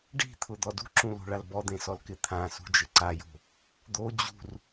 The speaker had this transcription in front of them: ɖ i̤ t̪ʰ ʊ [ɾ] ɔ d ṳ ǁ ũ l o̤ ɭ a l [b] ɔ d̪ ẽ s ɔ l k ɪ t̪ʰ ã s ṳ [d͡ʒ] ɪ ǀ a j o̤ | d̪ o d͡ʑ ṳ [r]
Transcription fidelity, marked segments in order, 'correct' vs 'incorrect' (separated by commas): incorrect, correct, correct, correct